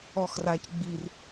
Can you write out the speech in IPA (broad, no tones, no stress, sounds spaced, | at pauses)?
ɔ x r a c ɡ͡b i r